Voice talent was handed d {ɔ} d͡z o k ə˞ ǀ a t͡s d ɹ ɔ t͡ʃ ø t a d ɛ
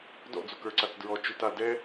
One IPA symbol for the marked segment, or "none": ɔ̰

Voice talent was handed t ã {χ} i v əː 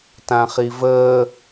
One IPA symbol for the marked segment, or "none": χ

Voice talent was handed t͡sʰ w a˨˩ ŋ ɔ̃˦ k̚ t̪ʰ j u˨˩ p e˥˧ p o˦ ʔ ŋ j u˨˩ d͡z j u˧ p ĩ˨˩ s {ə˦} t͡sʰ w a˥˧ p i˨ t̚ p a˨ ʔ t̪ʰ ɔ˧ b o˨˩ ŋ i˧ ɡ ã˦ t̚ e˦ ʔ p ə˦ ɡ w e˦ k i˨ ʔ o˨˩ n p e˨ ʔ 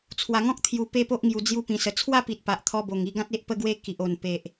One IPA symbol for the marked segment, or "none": ə˨˩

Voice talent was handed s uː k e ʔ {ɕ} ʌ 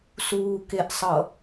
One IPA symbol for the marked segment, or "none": sˤ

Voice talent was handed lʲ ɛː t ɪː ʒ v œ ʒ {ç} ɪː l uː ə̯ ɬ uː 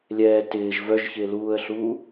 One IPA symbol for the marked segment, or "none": ç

